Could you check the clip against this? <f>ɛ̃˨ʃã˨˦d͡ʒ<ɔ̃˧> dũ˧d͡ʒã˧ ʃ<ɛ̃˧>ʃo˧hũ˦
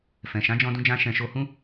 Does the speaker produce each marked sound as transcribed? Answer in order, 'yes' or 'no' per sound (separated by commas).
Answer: yes, yes, yes